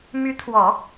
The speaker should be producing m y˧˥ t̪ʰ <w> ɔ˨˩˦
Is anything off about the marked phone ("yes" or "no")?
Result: no